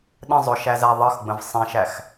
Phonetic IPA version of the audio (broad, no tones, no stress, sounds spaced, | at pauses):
ɗ ə̃ zˤ ʊ ʃ æ z æ ðˤ ʌ x ɡ͡b ə̃ v sˤ ĩ ʃ æ x